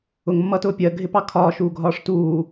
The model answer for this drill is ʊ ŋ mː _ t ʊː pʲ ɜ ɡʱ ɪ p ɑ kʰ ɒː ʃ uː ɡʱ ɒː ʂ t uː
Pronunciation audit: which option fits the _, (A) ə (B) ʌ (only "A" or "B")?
B